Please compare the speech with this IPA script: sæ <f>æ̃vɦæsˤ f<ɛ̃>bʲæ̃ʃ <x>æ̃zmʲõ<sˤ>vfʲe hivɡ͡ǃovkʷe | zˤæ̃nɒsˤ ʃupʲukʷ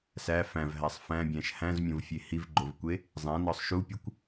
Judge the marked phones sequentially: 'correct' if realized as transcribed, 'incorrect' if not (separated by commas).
correct, incorrect, incorrect, incorrect